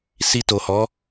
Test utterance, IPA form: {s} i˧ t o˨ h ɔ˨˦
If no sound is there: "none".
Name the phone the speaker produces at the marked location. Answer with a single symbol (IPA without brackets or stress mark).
s